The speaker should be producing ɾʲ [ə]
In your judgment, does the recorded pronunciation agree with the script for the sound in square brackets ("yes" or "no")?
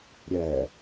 no